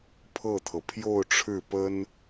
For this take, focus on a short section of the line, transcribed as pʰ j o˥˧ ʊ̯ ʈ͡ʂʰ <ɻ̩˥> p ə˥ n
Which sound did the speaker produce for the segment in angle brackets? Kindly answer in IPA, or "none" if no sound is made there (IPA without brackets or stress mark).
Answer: ɻ̩˥˩